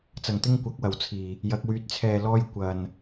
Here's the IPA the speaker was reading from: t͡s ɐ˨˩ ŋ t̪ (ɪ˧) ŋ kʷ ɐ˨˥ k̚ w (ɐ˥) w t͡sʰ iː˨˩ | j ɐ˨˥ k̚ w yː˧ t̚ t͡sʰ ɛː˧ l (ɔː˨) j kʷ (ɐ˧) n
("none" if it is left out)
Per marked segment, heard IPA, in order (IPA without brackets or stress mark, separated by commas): ɪ˥, ɐ˨˩, ɔː˥, ɐ˨